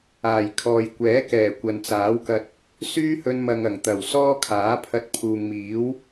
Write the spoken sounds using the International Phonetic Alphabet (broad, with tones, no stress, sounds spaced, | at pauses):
aː˨˩ j kʰ ɔː˨ j kʷ ɛː˨˥ k ɛː˨˩ kʷ ɐ˨ n t͡s aː˨˥ w k ɐ˧ t̚ | s yː˥ h ɵ˧ n m ɐ˨ ŋ ɐ˨˩ ŋ t̪ ɐ˨˩ w s ɔː˥ kʰ aː˨˥ pʰ ɐ˧ t̚ pʰ uː˨ ŋ m iː˨˥ w